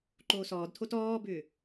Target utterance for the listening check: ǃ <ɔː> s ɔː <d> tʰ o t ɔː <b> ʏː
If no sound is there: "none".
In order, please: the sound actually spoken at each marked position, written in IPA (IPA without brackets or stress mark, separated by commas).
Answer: oː, d, b